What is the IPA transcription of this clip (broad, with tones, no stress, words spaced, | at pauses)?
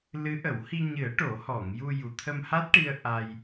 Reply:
lɨ˧˥ʔə˨˩˦whi˧ ɲɨ˨˩˦ə̯ ʈo˨˩˦hɔ˨˩˨ŋju˧ju˨˩ t̪ʰə˧mha˦˥t̚ʈi˧ə̯ ʔa˧j